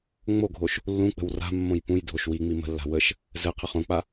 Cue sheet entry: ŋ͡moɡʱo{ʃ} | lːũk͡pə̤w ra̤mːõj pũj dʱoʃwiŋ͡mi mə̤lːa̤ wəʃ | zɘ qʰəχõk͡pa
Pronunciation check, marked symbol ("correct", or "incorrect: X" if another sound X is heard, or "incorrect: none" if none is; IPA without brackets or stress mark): correct